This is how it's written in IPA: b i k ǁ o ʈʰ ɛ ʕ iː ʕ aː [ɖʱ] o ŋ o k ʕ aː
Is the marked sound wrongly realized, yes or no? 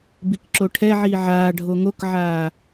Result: no